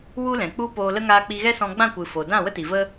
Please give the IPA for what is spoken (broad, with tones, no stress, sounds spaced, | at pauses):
w u˦ l ɛ̃˨ k͡p u˦ p oː˧ l ə˦ ŋ aː˧ k͡p i˧ ɣ ɛ˦ s ɔ̃˧ ɡ͡b ã˦˨ kʷ ɨ˨ f o˨ d ã˦˨ w ə˦ t i˨ v ə˦